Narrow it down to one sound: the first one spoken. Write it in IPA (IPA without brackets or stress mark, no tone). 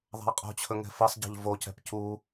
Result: ðˤ